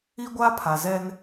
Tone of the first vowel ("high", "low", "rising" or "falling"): high